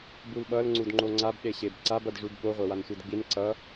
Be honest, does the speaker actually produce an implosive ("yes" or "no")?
yes